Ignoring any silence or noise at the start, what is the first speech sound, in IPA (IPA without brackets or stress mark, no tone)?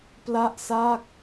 p